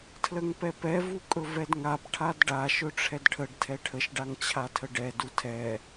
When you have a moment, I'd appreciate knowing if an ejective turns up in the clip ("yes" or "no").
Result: yes